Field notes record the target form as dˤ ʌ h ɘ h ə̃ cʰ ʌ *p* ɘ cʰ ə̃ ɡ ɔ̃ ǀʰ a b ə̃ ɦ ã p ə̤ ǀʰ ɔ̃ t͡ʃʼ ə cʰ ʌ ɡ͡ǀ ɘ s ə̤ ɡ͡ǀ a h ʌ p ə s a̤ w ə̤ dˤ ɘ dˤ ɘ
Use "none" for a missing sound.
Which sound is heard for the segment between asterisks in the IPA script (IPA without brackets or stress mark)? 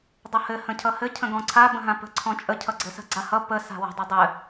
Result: h